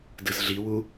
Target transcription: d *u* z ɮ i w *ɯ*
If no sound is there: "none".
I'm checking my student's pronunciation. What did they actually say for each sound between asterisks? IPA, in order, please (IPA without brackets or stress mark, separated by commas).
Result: ɯ, u